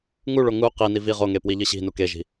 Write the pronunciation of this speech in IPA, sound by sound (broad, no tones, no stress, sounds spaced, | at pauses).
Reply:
ŋ u ɭ o ŋ u q i n i v i ʁ o ŋ e p w i ʎ ɨ ɕ i̤ n u k e ʒ i̤